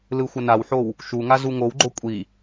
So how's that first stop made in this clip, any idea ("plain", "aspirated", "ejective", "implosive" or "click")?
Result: click